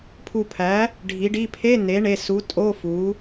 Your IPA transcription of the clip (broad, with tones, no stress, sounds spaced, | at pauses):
pʰ u˧˩ pʰ æ˩˥ | ɖʱ i˩˥ ɖ i˧˥˧ pʰ e˧˥˧ n e˩˥ ɳ e˩˧˩ s u˩˥ tʼ o˧˥˧ f u˩˥